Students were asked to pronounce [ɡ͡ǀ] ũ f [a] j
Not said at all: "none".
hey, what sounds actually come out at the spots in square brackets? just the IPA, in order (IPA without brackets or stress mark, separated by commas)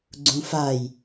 ɡ͡ǀ, a